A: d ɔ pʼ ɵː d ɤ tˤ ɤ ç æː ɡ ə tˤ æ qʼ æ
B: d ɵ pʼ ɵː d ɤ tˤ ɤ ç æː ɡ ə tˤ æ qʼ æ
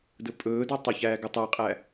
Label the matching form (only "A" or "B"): B